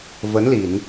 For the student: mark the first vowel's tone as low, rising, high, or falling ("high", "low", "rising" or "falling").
rising